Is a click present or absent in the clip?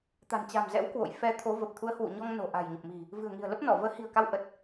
absent